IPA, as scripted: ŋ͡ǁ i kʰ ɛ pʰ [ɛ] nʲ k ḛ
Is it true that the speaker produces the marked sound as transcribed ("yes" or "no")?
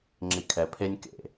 no